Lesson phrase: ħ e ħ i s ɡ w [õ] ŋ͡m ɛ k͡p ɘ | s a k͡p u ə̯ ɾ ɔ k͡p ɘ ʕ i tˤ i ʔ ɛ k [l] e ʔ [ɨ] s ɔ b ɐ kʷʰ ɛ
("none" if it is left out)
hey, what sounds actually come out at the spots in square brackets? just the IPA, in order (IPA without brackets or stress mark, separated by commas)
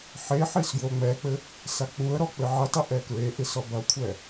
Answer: o, ɹ, ɨ